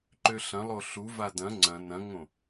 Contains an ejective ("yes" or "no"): no